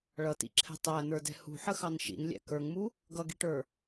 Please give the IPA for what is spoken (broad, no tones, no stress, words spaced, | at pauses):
ɭʌtḭǁʰɛ̤ tˤæn̪ə˞dɛ̤ hṳħə xɑnʃḭnlʲæ̰ kə˞ŋmu | ɡʌɡiʈə˞